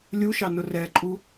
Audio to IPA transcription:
lʲuʃɑ nʊrɛǃʼu

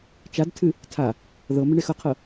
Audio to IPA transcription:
t͡ʃadtʰɨ | tʰa | ðɤ mɪɳexʌqʰɤ

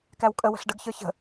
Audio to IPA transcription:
kæwkʼə wə̤ɬɖəɡçə˞ çə̤

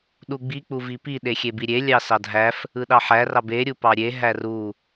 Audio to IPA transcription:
ɗuɡ͡bi k͡puvipi ɗexʲebiɾʲe lʲɑsɑdʱæf | ɯɗɑħæ rɑbe ɾʲupɑɾʲe ɦæru

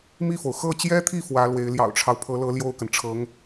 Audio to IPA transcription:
mi˥˩fo˩ʊ̯ xɤ˥˩t͡ɕjɛ˥t̪ʰi˥˩ fwä˧˥lwe˧˥ɪ̯ ljɑ̰˨˩ʊ̯ʈ͡ʂʰɑ˦ʊ̯pʰɤ˧˥lɤ˧˥ ljo˥˩ʊ̯kə˩nʈ͡ʂʰɤ˧˥ŋ

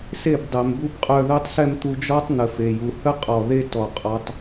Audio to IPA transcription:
se˦˨bdˤɛ˨mbu˦bqʼœ˧ ðœ˦tˤsɛ˦m t̪u˧d͡ʒɔ˦tˤ n̪ə˨fe˨ju˨ hə˦qʼɔ˨ ðe˦ tɔ˨qʼɔ˧tˤ

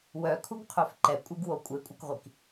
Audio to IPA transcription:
wœkʰuɡqʰøf ǃɛkʷʼiɡwo kʷʼekʷʼɛkʁʷik

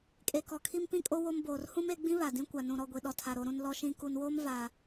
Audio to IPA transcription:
kʼe˨kɔ˨kʰi˦m pĩ˦kʼo˦ wo˦mboː˨r hũ˦me˨˦ɡ͡bĩ˦ βa˨dĩ˦kʷa˨nũ˨ ɾɔ˦˨ɡʷi˨ɗɔ˨tʰa˨ ɾo˨ɾũ˨n lɔ˨ʃĩ˨ ku˨nwoː˦m va˨

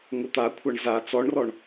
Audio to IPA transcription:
ŋʊt̪akʷʰaɳ za t͡sɔɳrɔɳ

